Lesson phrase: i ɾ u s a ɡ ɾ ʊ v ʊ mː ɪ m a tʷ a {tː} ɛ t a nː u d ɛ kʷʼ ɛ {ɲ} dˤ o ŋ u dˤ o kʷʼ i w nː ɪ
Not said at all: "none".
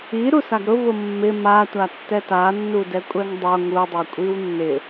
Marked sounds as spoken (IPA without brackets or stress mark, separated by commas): tː, ŋ